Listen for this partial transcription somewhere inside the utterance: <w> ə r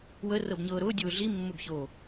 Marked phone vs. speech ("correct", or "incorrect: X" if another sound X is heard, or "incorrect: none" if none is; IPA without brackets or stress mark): correct